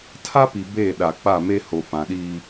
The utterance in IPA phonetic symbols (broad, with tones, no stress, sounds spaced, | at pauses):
tʰ a˦ p i˨ b e˦˨ ɗ a˨ k͡p a˦˨ m e˦ h o˨ f ã˨ ɗ iː˦